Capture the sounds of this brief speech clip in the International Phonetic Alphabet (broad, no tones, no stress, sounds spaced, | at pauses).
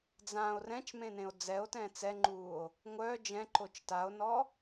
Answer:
d͡z ã o̯ r ɛ̃ t͡ʃ m ẽ n ẽ o̯ d͡z ɛ o̯ t ɛ̃ t͡s ɛ ŋ͡ǃ uː o̯ | ŋʷ œː d͡ʒ ɛ̃ ǃ o t͡ʃ t a o̯ n ɔ